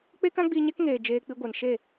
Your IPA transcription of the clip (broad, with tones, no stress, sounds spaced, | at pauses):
k͡p e˦ k ã˦ ɡ͡b iː˧ ɲ ɛ˦ k ŋ eː˨ d͡ʒ eː˧ k͡p i˧ ɡʷ ɛ˨ n ʃ e˦˨